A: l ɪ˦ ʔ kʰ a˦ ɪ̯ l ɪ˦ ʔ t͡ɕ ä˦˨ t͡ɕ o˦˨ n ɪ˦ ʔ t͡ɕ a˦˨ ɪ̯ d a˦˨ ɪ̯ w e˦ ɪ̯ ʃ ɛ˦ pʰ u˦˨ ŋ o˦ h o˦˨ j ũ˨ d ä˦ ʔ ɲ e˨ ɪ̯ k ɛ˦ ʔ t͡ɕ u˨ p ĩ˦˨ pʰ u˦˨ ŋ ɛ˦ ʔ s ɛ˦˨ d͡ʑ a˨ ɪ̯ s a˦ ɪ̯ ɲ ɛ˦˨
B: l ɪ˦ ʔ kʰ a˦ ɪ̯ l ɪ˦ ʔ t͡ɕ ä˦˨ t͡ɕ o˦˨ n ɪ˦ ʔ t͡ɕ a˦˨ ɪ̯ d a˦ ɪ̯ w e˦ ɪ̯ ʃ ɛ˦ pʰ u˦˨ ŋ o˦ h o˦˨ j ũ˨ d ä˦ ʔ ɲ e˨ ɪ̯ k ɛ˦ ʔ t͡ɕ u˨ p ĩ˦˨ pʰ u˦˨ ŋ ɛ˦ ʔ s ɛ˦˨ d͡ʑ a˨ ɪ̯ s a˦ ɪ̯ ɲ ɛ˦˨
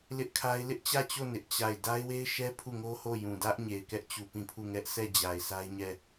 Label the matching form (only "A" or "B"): B